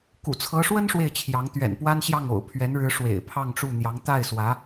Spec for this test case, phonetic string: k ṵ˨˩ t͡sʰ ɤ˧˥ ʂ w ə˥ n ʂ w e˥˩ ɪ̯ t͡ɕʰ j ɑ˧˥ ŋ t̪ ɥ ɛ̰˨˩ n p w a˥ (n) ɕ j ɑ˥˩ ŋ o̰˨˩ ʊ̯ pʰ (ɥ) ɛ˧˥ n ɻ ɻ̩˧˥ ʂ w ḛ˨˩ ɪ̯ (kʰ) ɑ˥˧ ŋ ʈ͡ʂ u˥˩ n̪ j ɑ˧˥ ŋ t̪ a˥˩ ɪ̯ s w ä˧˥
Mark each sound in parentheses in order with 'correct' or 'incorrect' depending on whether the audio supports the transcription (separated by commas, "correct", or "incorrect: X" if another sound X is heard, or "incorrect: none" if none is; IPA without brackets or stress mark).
correct, correct, incorrect: pʰ